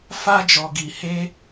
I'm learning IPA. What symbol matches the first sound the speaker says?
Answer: f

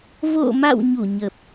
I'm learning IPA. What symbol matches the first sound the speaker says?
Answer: v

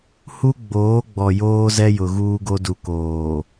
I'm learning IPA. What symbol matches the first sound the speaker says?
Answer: h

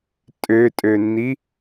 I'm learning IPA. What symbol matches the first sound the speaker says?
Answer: tʼ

